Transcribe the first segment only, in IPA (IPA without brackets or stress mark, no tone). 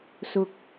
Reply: s